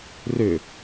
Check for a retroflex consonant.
absent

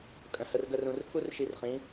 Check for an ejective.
present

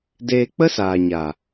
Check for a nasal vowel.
absent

